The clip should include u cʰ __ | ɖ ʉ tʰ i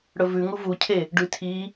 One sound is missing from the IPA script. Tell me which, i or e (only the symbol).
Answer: e